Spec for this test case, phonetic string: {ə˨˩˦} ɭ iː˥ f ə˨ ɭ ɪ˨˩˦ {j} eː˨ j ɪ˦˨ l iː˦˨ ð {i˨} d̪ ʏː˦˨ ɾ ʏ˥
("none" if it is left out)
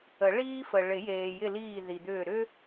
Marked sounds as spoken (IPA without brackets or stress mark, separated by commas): ə˨˩˦, j, i˨